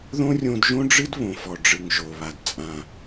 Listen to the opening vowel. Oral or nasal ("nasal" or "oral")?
nasal